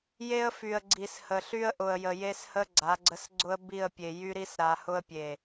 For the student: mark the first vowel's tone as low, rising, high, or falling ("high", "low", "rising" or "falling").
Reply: high